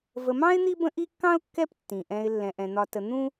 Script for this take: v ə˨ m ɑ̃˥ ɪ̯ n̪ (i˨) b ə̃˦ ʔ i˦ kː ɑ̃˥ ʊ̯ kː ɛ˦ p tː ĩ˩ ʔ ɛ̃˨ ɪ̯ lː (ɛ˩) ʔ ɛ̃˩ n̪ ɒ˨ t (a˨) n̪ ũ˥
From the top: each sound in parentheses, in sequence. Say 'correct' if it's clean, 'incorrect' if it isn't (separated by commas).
incorrect, incorrect, incorrect